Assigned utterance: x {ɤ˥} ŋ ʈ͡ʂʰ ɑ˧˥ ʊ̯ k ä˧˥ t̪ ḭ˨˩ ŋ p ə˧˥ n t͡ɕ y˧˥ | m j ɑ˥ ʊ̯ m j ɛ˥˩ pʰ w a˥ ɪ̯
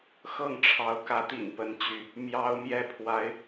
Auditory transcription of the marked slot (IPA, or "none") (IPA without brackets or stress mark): ɤ˥˩